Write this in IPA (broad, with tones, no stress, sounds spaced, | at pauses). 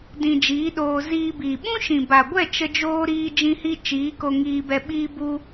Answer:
d ĩ˧ d͡ʒ iː˨˦ ɗ oː˧ z iː˧ b iː˨ ɓ ũ˦ ʃ ĩ˨ b a˨ ɡʷ ɛ˦˨ t͡ʃ ə˦ d͡ʒ oː˦ ɾ iː˦ d͡ʒ ĩ˧ h i˧ t͡ʃ iː˨˦ k o˧ ŋ iː˧ b ɛ˧ ɓ iː˦ b u˦